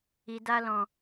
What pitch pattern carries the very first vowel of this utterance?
low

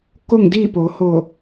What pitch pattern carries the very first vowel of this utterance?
falling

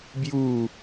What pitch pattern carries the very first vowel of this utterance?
falling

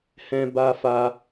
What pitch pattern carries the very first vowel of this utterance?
high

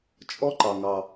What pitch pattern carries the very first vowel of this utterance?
high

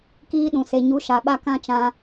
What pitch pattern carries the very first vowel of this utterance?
high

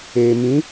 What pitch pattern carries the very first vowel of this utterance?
low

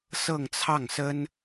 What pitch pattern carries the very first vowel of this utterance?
falling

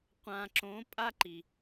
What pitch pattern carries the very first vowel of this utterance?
low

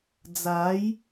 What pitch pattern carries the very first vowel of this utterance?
rising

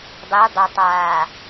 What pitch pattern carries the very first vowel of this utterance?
rising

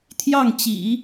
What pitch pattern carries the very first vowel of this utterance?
falling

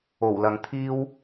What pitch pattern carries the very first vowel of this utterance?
low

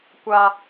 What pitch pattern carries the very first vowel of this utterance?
high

